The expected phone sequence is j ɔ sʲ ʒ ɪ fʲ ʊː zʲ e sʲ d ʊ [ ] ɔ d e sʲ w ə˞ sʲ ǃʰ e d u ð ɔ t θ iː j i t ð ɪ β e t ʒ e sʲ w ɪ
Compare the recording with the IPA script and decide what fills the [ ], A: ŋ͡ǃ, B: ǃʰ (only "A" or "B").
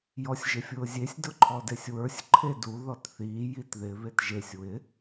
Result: B